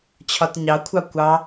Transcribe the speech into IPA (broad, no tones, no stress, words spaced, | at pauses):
t͡ɕʰɒtɲɑkʷʰɑ kʷɑ